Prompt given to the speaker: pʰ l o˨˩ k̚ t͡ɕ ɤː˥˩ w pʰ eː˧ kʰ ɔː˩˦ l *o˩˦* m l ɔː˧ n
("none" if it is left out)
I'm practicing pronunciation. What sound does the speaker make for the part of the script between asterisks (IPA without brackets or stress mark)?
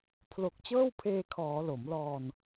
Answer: o˩˦